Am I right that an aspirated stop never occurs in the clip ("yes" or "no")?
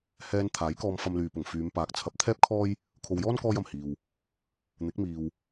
no